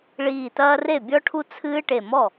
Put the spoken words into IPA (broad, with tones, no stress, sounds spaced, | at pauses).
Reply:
ɭ iː˧˩ t ɐː˦ r e˥˩ bʲ ɔ˦ ʈʰ u˦ t͡sʰ ɨː˦ ʈ e˧˩ m ɔ˥˩